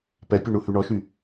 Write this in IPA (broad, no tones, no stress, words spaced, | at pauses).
pɛpʲu ɳuhyɳɔʃy